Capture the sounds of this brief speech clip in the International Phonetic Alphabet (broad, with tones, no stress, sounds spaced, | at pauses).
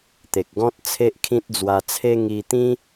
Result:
t̪ e˨ k̚ ɡ ɔ̃˦ t̚ t͡sʰ e˦ ʔ kʰ ĩ˦ t̚ d͡z w a˧ t͡sʰ e˦ ŋ i˧ t̪ ĩ˦